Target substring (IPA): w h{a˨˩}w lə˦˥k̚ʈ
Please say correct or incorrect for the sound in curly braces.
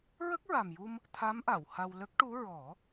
incorrect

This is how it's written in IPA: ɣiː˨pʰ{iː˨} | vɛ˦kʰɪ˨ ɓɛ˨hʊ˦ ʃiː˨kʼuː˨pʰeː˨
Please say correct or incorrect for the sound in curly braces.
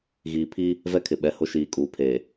incorrect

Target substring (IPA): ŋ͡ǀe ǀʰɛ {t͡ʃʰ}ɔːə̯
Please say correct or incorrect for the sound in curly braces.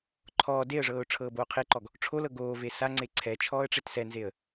correct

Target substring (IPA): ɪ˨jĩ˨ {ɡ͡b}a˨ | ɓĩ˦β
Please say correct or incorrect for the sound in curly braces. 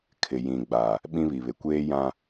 correct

